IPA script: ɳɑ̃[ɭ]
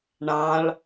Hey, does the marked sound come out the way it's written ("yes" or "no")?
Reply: yes